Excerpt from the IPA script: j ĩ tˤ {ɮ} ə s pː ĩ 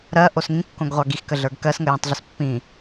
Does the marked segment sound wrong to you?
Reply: no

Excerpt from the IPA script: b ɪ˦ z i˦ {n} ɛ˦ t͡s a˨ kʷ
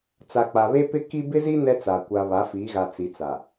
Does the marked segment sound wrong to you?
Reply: no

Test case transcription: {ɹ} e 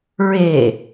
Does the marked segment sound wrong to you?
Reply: no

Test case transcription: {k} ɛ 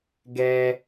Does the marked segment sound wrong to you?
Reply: yes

